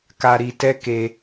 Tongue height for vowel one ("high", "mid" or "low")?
low